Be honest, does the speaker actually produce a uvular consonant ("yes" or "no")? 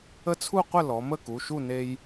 yes